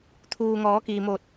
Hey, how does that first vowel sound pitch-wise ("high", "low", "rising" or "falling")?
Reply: low